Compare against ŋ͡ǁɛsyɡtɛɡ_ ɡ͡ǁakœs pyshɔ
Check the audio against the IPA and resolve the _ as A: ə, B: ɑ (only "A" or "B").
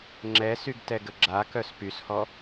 A